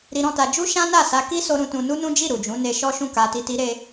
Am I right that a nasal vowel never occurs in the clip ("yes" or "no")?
no